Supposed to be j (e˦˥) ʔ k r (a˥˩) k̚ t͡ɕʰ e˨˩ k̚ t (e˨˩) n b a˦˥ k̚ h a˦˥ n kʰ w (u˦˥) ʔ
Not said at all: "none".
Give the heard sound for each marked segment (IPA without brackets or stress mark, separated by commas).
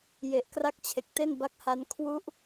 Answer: e˨˩, a˦˥, e˥˩, u˦˥